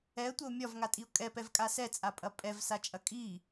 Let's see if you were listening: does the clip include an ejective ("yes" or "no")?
yes